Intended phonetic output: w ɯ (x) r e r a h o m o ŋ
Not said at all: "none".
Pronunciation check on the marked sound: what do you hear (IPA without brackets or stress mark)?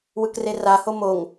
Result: k